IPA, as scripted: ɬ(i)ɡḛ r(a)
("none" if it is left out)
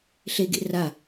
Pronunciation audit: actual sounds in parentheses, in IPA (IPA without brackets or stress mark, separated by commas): e, a